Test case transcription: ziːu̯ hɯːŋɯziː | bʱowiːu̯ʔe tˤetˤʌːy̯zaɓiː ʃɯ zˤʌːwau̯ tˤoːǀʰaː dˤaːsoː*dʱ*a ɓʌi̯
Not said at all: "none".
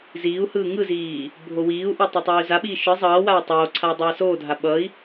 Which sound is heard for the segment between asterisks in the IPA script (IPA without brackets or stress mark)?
dʱ